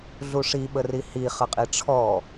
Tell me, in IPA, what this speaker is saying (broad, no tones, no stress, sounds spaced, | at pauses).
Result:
ɮ u ʂ i ɓ ə r i h i χ ə qʼ i ʈ͡ʂʰ ɔ